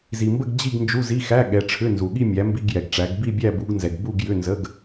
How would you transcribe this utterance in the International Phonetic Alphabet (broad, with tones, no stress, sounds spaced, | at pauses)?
z i˨ m b ə˥˧ ɡ d͡ʑ i˥˧ ɡ n d͡ʒ u˧˥˧ z i˧˥˧ x æ˧˥˧ ɠ ɛ˨˦ ʈ͡ʂʰ ʏ˧˥˧ n z u˨ ɠ i˥˧ mʲ æ˨˦ m b i˧˥˧ ɡ j ɛ˨ ɡ ʈ͡ʂ æ˨˦ ɡ b i˥˧ bʲ æ˥˧ b u˨˦ ɡ n z ɛ˨ ɡ b u˥˧ ɡ j ʏ˧˥˧ n z ə˧˥˧ ɡ